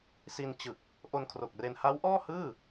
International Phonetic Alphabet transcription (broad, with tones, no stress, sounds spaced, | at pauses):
s i˧ n t͡ɕ ɯ˨˩ k̚ | ʔ o˧ n kʰ r o˨˩ k̚ r e˧ n h a˦˥ w ʔ ɔː˥˩ h ɯː˥˩